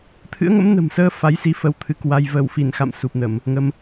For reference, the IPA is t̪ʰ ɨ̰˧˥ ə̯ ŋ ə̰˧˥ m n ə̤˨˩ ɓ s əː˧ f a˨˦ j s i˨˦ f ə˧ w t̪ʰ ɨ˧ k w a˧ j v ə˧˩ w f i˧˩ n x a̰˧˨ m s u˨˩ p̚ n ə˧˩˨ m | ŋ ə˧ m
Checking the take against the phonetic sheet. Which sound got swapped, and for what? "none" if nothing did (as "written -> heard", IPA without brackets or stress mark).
ɓ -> m